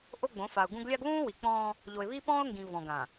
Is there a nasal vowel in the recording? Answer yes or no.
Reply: yes